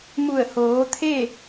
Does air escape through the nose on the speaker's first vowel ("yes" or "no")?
no